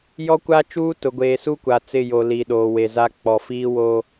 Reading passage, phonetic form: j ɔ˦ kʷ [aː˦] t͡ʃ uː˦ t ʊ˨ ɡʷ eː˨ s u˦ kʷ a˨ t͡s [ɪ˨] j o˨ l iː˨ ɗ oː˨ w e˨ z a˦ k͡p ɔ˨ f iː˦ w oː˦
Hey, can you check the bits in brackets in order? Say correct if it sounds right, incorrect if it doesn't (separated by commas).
correct, incorrect